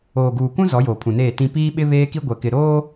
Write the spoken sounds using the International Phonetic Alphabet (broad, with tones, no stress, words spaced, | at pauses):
oː˨ɡuː˨kũ˦ zɔ˨˦joː˨pʰũ˨neː˦˨ tĩ˦ piː˦ɓɪ˦βeː˦ki˦ ɡʷɛ˨kɪ˨ ɾoː˦